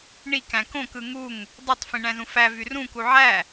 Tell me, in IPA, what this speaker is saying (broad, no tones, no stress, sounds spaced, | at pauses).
ɳ i k æ̃ k õ k ɯ ŋ u ŋ | dˤ ø tˤ f ĩ ɳ æ̃ z ũ f æ v y r ũ k u ʕ æ